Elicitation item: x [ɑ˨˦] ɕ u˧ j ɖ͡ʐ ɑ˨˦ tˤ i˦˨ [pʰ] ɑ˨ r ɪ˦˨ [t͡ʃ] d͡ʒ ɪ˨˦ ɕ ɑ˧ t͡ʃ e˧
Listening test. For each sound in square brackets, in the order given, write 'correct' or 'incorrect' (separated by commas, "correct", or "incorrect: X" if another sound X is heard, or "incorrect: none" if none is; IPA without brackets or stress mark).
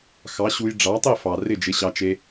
correct, incorrect: f, incorrect: none